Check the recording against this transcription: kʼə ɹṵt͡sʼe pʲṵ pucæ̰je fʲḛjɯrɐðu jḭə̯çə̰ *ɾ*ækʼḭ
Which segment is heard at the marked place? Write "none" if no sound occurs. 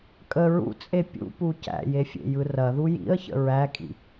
ɹ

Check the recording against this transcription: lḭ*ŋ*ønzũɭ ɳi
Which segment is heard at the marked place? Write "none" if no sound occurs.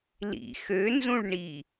x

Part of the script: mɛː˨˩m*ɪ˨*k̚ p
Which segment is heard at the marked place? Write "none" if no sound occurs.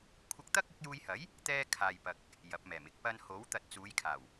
ɪ˥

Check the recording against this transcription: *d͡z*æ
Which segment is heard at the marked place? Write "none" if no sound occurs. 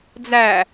d͡z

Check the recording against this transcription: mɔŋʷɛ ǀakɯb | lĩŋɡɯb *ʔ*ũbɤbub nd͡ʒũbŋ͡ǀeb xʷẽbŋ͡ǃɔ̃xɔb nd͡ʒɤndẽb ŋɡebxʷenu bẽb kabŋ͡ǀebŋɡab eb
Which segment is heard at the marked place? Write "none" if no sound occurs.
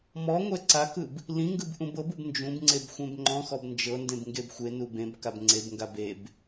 ʔ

